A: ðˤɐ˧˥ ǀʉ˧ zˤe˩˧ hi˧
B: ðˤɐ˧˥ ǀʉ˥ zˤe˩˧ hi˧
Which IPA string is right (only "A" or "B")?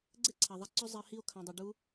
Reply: A